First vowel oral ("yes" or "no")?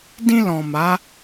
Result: no